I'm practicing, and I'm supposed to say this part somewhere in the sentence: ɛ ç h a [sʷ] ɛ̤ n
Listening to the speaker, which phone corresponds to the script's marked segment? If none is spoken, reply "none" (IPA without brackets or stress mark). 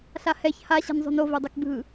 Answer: ɕ